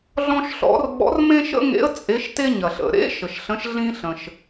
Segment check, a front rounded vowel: absent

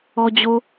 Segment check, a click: absent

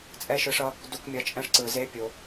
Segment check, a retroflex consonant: present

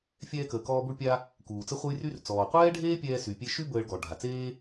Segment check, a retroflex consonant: present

